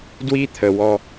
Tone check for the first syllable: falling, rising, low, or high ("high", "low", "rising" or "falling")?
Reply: high